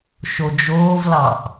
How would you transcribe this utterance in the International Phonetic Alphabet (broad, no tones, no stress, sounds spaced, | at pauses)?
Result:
ʃ o d͡ʒ oː v l ɑ ʔ